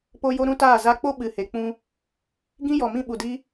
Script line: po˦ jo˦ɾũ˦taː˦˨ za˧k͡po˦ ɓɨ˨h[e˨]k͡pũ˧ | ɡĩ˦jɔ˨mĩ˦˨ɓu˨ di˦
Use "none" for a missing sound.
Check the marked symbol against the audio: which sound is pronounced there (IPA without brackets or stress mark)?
e˨